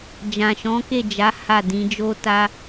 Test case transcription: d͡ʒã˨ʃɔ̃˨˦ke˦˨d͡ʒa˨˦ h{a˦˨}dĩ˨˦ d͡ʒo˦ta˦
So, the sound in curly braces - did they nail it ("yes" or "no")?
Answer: yes